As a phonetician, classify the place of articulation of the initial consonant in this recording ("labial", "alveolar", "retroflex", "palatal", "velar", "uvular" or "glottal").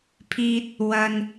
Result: labial